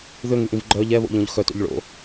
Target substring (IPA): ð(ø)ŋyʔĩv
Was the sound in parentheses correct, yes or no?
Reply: yes